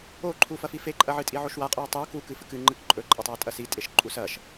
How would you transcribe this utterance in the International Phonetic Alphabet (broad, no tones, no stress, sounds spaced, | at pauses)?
o ǃʰ u f ɐ f i f e ǃʼ ɐ ʕ ɨ tʼ i ʕ o ʃ w a qʼ o w tˤ ɨ w k u k ɨ f ɨ k ɨ ŋ͡ǃ ɨ k ǃʼ ɵ ǃʼ ɐ tˤ w e tʼ ɐ s i tʼ e ʃ ǃʼ u s ɐ ʃ